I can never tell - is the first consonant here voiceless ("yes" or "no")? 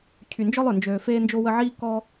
yes